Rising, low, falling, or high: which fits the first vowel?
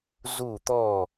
falling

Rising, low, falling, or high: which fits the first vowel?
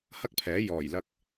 high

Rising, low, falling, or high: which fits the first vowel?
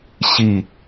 falling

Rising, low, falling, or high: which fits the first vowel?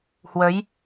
rising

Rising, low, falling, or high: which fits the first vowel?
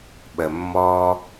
low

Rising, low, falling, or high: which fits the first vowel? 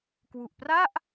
low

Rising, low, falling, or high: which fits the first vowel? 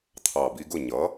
low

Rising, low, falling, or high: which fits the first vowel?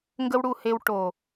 high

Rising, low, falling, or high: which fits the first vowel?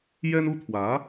high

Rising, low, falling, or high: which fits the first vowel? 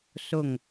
falling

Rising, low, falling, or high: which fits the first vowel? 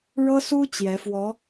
high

